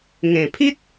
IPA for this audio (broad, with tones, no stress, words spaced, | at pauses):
ŋẽ˨˩pʰi˦t̚